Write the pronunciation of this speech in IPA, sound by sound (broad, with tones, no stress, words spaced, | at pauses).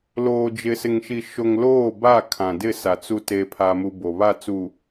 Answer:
loː˨d͡ʒɪ˨sɪ˨ŋʃi˨ ʃo˨ŋ loː˦˨ba˦˨kʰã˨dɪ˦˨ sa˨t͡su˦ te˦pʰa˦mu˦ bo˨βa˦˨t͡su˨